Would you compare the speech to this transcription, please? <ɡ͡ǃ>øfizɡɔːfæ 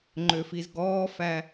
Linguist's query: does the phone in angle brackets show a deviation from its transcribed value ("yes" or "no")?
yes